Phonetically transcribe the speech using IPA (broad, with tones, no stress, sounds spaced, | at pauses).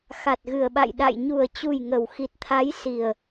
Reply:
x a˨˩ t̚ ɣ ɨ˨˩ ə̯ ɓ a̰˧˨ j ɗ a̰˧˨ j ɲ u˨˩ ə̯ t͡ɕ u˨˩ j ŋ ə˨˩ w x i˨˩ t̚ t̪ʰ a˨˦ j s i˨˩ ə̯